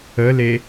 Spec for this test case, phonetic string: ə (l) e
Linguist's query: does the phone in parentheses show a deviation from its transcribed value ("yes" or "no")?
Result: no